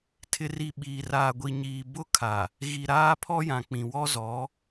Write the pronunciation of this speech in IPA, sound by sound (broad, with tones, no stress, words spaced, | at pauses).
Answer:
tʰɪ˨ri˨ ɓiː˨raː˨ ɡʷi˨ɲiː˨ bʊ˦kʰa˨ | ɣi˨ɾaː˦pʰɔ˦jã˨ k͡pĩ˨wɔ˦zɔ˨˦